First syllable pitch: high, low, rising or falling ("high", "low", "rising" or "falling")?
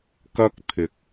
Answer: high